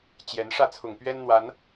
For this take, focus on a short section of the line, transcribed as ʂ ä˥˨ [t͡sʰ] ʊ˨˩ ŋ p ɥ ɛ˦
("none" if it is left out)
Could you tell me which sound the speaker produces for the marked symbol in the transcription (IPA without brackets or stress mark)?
t͡sʰ